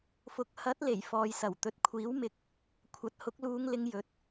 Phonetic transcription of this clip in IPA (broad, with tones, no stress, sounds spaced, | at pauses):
f ʊ˨ k̚ h ɐ˨˥ t̚ l e˨˩ j f ɔː˨ j s ɐ˨˩ w t̪ ɵ˨ t̚ kʷʰ iː˨˥ w m ɪ˨˥ k̚ | kʷʰ ɐ˨˥ t̚ h ʊ˨˥ k̚ l uː˨˧ ŋ l ɪ˨˧ ŋ j ɵ˨˥ t̚